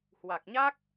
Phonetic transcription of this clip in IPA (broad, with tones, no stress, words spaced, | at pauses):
hwa˨˩k̚ɲa˦˥k̚